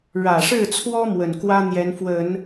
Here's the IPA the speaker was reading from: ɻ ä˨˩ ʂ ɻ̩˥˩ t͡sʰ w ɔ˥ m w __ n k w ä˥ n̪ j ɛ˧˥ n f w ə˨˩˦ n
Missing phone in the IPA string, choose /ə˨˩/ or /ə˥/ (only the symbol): ə˨˩